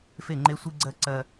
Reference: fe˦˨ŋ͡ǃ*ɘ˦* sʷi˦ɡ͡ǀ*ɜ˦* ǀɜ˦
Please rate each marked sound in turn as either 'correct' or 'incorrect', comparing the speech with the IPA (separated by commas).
incorrect, correct